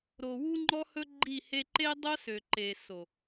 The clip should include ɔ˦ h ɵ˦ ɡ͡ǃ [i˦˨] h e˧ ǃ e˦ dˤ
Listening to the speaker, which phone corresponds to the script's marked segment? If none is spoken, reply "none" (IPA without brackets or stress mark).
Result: i˦˨